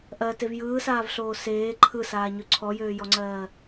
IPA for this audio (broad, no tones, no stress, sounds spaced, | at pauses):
ʔ ɜ t e v j ɯː s aː v ɬ oː s eː ǃʰ ɯ s aː ɲ ø ǀʰ ɔ j øː j ɔ ŋ͡ǀ ɜː